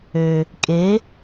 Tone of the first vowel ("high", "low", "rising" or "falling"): low